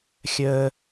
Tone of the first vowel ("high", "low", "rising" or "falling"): high